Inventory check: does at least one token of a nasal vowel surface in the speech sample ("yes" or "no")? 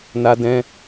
yes